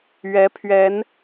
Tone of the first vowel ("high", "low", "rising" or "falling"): rising